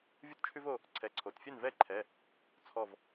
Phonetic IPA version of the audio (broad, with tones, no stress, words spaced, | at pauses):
vʲu˦tt͡ʃʰʉ˦vo˩˧˩ | ǀʰɛ˩˧˩ǀʰo˩tfʲɛ˥˩n vɛ˥˩ǃʰɛ˩˧˩ | t͡sʰɔ˧˩v